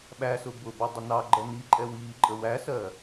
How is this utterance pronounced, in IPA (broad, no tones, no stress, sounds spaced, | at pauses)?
ɓ æ s ʊ b ʊ b ɛ dˤ ə n ɑ ɡ͡ǃ ɜ n i ǃʼ ɛ w iː ǃʼ ə w æ s ɜ